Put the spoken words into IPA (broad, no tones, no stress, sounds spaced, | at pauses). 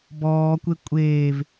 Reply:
b ɔː kʷ e kʷʼ eː v